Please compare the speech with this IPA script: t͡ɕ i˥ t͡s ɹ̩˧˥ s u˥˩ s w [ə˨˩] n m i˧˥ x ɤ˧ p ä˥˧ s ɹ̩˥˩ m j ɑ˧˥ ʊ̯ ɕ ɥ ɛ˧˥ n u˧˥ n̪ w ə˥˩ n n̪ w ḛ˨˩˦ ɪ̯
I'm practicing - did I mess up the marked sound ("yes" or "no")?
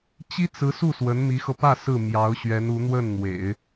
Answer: yes